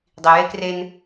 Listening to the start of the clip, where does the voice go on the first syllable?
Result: low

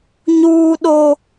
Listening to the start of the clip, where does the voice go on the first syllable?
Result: high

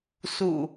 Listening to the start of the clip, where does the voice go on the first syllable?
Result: low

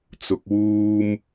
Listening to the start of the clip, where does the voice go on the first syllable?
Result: low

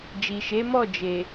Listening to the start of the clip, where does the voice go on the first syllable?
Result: low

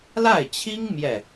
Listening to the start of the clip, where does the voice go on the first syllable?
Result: falling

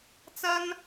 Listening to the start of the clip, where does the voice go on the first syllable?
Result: high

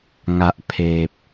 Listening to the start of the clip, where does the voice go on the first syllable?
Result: low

